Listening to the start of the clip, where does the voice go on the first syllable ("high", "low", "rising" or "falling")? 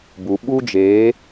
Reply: low